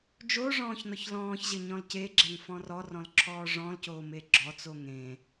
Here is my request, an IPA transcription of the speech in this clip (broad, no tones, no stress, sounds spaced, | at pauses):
d͡ʒ o ʐ ɔ̃ː ç n ɔ ç l ɔ̃ː ç ʑ ɘ ɲ ɔ̃ l c e ɡ͡ǁ ɛ ŋ f ɔ̃ r ɔ r ɔ̃ l ǁʰ ɔː ʐ ɔ̃ l c oː m e ɡ͡ǁ ɔ t͡s o ŋ ẽ